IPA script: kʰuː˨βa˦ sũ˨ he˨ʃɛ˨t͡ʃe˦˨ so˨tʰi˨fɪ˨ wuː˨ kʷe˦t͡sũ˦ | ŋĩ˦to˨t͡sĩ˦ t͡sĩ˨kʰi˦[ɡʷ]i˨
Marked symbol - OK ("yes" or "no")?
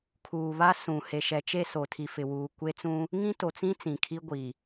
yes